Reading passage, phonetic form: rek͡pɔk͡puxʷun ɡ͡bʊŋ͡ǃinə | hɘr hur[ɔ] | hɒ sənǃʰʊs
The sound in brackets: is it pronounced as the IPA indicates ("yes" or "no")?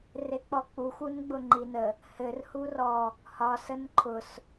yes